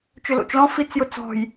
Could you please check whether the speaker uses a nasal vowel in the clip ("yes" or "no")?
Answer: yes